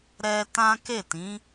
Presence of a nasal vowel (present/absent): present